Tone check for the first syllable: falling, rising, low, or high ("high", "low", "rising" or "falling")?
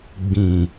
low